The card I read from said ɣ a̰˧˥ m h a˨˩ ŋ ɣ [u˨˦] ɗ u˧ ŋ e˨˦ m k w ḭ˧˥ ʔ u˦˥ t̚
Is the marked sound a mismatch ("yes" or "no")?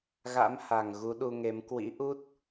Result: no